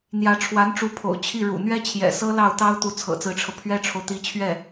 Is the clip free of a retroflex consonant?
no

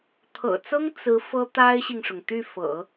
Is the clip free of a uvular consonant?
yes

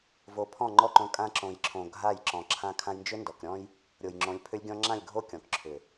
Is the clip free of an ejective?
no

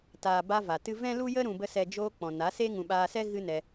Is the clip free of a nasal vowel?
no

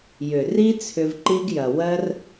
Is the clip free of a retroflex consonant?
yes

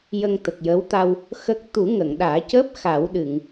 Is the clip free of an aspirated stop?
yes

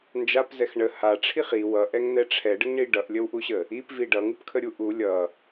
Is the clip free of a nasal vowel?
yes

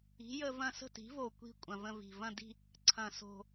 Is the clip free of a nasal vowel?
no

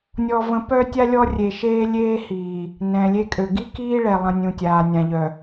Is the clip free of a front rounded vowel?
no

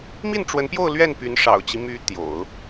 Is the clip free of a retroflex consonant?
no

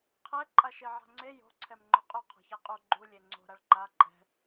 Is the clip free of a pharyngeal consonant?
no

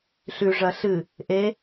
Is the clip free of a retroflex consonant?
no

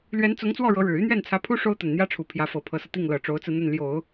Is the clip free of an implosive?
yes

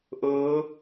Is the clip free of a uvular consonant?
yes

